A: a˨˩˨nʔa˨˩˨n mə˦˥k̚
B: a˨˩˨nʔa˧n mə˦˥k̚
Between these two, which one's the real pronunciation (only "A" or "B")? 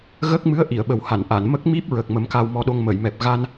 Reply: A